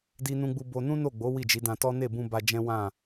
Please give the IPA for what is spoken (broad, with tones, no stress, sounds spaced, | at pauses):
d i˧ n ũ˧ ɡ͡b u˧ b o˧ n ũ˦ n o˦˨ ɡ͡b o˨˦ w i˦˨ d͡ʒ i˨˦ d ã˧ t ɔ˦ n e˦˨ b ũ˧ b a˧ d͡ʒ ɛ̃˦ w ã˦˨